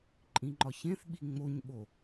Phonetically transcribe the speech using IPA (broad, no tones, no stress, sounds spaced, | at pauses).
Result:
ǃʼ ĩ ŋ͡ǃ ɒ ç ẽ θ ɓ i ŋ͡m o ɲ ɓ o